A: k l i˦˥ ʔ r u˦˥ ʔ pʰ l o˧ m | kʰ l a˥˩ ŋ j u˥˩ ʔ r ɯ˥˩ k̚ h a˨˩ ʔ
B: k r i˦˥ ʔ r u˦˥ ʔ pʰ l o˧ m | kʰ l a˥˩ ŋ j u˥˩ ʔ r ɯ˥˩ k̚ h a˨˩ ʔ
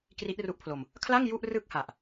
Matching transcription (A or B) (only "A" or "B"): B